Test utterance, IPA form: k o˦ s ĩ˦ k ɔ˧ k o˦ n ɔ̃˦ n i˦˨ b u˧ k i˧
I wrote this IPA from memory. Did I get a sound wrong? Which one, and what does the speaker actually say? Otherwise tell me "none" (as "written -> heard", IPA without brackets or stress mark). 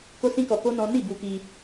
none